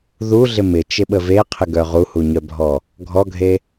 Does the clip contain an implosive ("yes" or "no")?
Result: yes